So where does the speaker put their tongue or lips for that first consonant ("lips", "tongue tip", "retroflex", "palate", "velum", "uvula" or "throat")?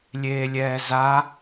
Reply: tongue tip